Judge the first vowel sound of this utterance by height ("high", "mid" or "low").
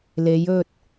mid